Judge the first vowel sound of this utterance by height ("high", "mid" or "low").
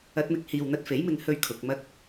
low